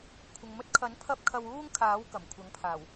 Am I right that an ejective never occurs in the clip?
yes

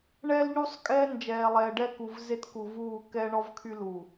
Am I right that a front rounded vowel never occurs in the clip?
no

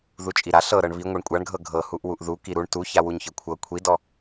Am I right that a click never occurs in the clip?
yes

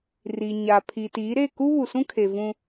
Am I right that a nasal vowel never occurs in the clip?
no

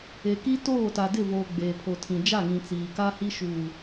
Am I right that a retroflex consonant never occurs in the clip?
yes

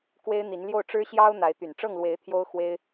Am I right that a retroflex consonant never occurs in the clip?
no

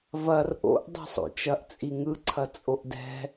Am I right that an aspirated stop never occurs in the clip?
no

